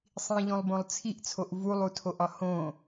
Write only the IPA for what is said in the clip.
sˤ ĩ ʎ õ lˠ b õ lˠ t͡sʰ i ʔ t͡sʰ o ʔ v u lˠ u tʰ o ʔ ɒ h õ

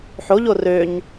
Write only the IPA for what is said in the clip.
ħ o ʎ o r ø ɲ

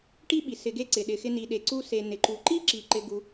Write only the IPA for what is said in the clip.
ʈ i˦ ɓ i˨ s ɪ˧ ɡ e˦ ǀ ɪ˨ ɗ ɪ˨ x ɪ˧ n i˨ ɗ e˨ ǀ u˧ s e˨ n ɪ˨ ǃ u˨ ǃ i˦ ǁ i˨ ǃ ɪ˧ ɡ u˧

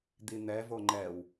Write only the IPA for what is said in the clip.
d̪ i n̪ ɛ v o ŋ͡ǃ ɛ w

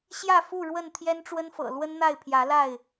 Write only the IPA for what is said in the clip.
ɕ j ä˥˨ f u˥˨ ɻ w ə˥˨ n t̪ʰ j ɛ˦ n ʈ͡ʂ w ə˦ n f ɤ̰˨˩ l w ə˦ n n̪ a˥˨ ɪ̯ pʰ j ä˨˦ l a˥˨ ɪ̯

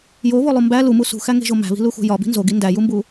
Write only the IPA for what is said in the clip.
j o β o lˠ u m b æ l u m u s ṳ x æ ŋ e̤ ʒ o m æ̤ β i̤ l u x ṳ j ɒ b i̤ n z o ɡ i n d æ j u m b u

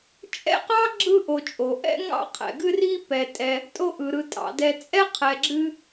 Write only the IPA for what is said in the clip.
t͡ʃʼ ɛ̰˦ q ɑ˥ ɡ͡ǁ ɯ˥ ʔ o˨ t͡ʃʼ o˩ ʔ ɛ̰˦ ŋ ɑ̰˥ qʰ ɛ̰˩ ɡ ɨ˥ r i˥ p ɛ˨ tʼ ɛ˨ | tʼ o˦ ʔ ɯ˩ ɾ ɯ˨ tʼ ɑ̰˨ d ɛ˨ t͡sʼ ɛ˥ qʰ ɛ˨ ɡ͡ǁ ɨ˦

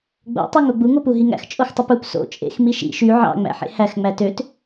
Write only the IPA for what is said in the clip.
ɡ͡b o̰ tˤ o ŋ o ɡ͡b u ŋ o p u ɦ i ŋ æ̰ x t͡ʃʼ o x tˤ u p u p s o̰ t͡ʃʼ ḛ x m i ʃ ḭ ʃ y ʕ ɑ̰ ŋ͡m æ̰ ħ ḛ h æ x ŋ͡m æ t ø t

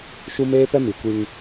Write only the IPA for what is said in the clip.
ʃ u˦ m eː˦ p ɛ˦ m i˨ kʷ i˦ ŋ

